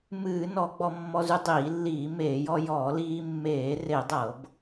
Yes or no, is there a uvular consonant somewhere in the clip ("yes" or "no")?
no